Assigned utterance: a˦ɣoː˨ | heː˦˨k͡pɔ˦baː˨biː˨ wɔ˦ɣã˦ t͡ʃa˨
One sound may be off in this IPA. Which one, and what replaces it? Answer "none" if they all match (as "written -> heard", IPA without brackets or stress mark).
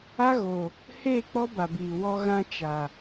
aː˨ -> a˨